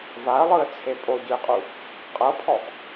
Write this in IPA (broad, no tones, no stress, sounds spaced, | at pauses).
v a ə̯ lˠ ɯ ə̯ t͡sʰ e pʼ o ɟ ɯ ɪ̯ qʼ u | qʼ ɤ pʰ ɔ ʔ